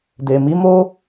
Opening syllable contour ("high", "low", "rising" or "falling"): low